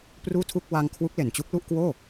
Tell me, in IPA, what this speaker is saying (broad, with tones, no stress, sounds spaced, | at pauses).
p r uː˥˩ tʰ u˥˩ k̚ w a˧ ŋ kʰ w u˦˥ k̚ l e˨˩ n t͡ɕ u˦˥ k̚ l u˥˩ ʔ k w oː˥˩